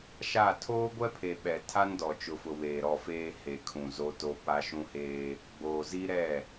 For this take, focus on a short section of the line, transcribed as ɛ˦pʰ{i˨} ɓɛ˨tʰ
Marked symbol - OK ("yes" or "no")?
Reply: no